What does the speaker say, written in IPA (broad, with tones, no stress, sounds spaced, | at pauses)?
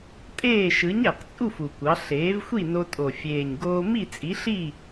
tʼ eː˥˨ ʃ ɯ˩˥ ɲ æ˨˩ q t͡sʼ u˥˨ f u˨˩ kʷ ɑ˩˥ ɬ eː˩˥ v xʷ i˥˨ n o˧ tʼ o˨˩ fʲ eː˨˩ ɲ ɡ oː˧ m i˥˨ t͡sʼ i˩˥ ɬ i˥˨